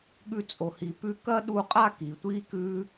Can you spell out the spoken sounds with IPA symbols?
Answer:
ɠʉ˧t͡sʼo˨hi˨pʉ˧ kɐ˦ɗu˧qʼa˦˨ ki˨tʷi˦ kʉ˦

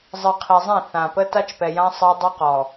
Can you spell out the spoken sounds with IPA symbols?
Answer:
zˤɨ˨qʰi˨zˤẽ˦˨ θã˨pə˦ ta˦t͡ʃpɛ˨jã˦ sˤɜ˦dˤɨ˦qɔ˨

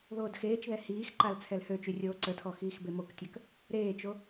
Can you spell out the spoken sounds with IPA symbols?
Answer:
ðoːdxeːt͡ʃðɛ hiːxǃal t͡sʰɛlhøt͡ʃy rʲoːǀətʰɔ xiːxbemoktʲœk | ɾeːt͡ʃo

